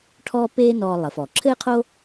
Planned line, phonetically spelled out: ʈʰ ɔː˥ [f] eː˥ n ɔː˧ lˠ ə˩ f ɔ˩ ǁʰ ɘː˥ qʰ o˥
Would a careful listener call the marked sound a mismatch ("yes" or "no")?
yes